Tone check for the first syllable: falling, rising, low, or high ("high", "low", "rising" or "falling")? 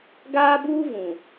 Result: high